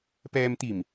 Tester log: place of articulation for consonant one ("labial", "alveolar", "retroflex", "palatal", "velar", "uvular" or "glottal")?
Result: labial